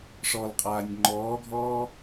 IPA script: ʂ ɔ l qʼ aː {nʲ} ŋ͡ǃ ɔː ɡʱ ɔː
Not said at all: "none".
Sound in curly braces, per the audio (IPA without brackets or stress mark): nʲ